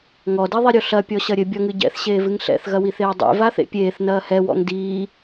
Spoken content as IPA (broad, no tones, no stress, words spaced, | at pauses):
ŋɔdiðˤiɾʲo ɬɐpʲɔɕɐ ɾʲɘbʲɔŋɨ ɟɛ̰θɕeːvɨŋ ɬɛ̰θɣɐwiθeː dˤḛvaθḛ pʲeːθnɐː hɛwɔ̰ŋ diː